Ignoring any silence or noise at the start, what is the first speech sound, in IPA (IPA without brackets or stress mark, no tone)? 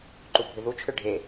ǃ